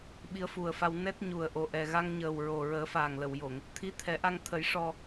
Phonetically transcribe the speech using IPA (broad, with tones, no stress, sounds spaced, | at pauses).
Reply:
ɓ i˧˥ ə̯ f u˨˩ ə̯ f a˧ w n ɛ˦˥ t̚ ɲ u˨˩ ə̯ ʔ o˨˩ ʔ ɛ˨˩ ɣ a˧ ŋ ɲ əː˨˩ w ɹ o˨˩ ɹ əː˨˩˦ f aː˨˩ ŋ l ə˨˩˨ w j o˨˩˨ ŋ | t̪ʰ i˧˥ t̪ʰ ɛ˨˩˦ ʔ a˧ ŋ t̪ʰ ə˨˩˦ j ʂ ɔ˨˩